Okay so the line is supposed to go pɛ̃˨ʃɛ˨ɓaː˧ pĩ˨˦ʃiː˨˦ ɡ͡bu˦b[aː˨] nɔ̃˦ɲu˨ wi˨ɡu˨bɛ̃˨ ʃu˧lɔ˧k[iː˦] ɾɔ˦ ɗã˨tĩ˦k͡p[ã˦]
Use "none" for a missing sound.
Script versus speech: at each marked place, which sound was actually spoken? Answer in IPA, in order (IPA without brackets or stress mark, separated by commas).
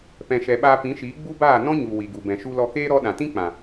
aː˦˨, eː˦, ã˨